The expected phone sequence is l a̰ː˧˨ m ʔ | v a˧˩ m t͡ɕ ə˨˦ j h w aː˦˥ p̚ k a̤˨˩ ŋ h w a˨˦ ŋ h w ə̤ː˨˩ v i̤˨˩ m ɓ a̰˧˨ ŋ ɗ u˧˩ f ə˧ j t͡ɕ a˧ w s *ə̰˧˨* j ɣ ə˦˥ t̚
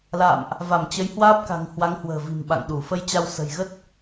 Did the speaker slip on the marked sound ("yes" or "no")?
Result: yes